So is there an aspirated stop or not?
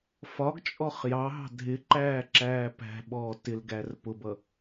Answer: no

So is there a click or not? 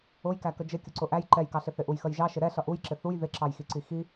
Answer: yes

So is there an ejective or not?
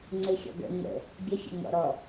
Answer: no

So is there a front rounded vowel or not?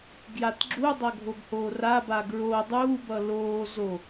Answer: no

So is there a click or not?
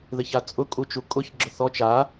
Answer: yes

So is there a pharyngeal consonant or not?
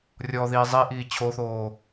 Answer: no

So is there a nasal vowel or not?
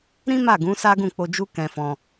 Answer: yes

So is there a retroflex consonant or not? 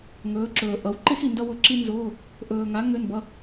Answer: no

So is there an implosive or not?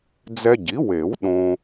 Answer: yes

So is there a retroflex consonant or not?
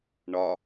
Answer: yes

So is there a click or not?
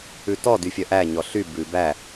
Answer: no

